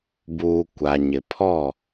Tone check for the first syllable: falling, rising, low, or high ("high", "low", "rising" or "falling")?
low